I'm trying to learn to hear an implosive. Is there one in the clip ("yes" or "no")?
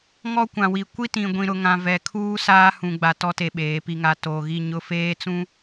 yes